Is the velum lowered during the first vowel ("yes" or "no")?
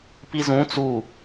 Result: no